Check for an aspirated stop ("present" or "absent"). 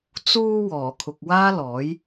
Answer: present